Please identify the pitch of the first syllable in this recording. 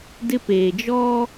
high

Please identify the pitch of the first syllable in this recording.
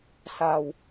low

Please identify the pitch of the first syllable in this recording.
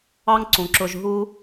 high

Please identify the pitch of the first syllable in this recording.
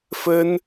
high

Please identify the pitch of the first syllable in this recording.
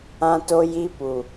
high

